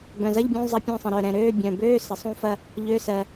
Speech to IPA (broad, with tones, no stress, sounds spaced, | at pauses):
b œ̃˨˩ z ɐ˧˥˧ ʎ bʲ ũ˧˥˧ zˤ ɐ˦˨ pʲ œ̃˦˨ sˤ ə̃˨˩ ɾ œ˨˩ ɾ ɛ̃˨˩ ɾ øː˧˥˧ bʲ œ̃˨˩ b øː˧˥˧ s ə˨˩ sˤ ũ˦˨ f ɐ˦˨ | ʎ ø˧˥˧ s ɜ˨˩